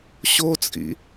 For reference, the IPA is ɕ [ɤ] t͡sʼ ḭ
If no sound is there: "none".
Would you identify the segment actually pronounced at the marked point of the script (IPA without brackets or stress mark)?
o